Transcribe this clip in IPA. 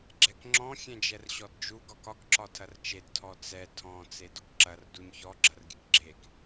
ɡ͡ǁɛkŋ͡ǁɔ̃ xʲɛ̃d͡ʒɛrɕɔdd͡ʒu ɡɒkɒk ǁɒtʰɐrt͡ʃed tʰɔt͡sɛ tʰɔ̃ t͡sedʊkǁɐr duɲçɔ ɡ͡ǁɐrɡʲɨkɡ͡ǁek

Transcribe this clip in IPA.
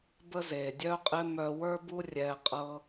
bə˦ze˨dʲœ˦qʼɪ˦ mœ˧wə˞˦bu˦ rʲɛ˧ qʼɤ˦

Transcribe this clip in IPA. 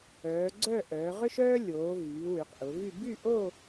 œː˩˧ɡ͡ǀœ˥˧ʔœː˩˧ ʁʏ˥ʃœː˥ lʲoː˩˧vyː˩˧ wy˩˧qʔʊ˩˧vy˥˧ by˥˧ʔo˥˧

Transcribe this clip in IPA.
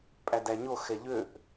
pʼædæɲo xɛʎøʔ

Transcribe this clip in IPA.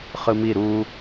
χɯmi ɾu

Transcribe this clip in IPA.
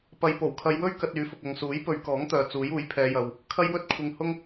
pɐ˧j po˨˩wkʰɐ˨˧jwɵ˥ɥ kɐ˧t̚yː˨˥fʊ˨k̚ ɐ˨ŋsuː˨˥j pɵ˨˧ɥkɔː˨˥ŋt̪œː˨ t͡suː˨˥juː˨˥jpʰɛː˨˧jɐ˨w | kʰɐ˥jwɵ˥t̚kʷʰɪ˧ŋhʊ˥ŋ

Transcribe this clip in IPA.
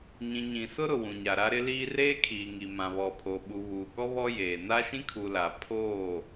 ɲĩ˨ɲĩ˨sʊ˦ ɾʊ˨wũ˨ɲa˨ɾa˦ ɾɪ˦liː˦ reː˦kʰiː˨ŋi˨ mã˨βɔ˨pʰo˨ɓu˨ βuː˨kɔ˦ βɔ˦ jeː˨ na˦ʃĩ˦kʰu˨ la˨ pʰoː˦˨

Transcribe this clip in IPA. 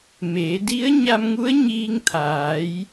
meː˩˧ di˧˥ə̯ɲa˧mŋu˧˥ə̯ ɲiː˧ŋt̪ʰaː˩˧j

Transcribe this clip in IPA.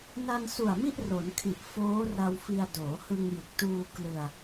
na˧nsu˨˩a̯ mi˥˩ʔro˩˦nkʰi˨˩ʔ foː˦˥ra˧wfi˧a̯ doː˩˦hɯ˧ŋjɯ˨˩k̚ tuː˧klɯ˧a̯

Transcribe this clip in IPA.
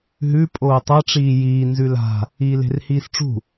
ɦʉ pʼoːtˤɐ ʈ͡ʂiːjiː nzʉla̤ | iːle̤rhiːsʈ͡ʂṳ

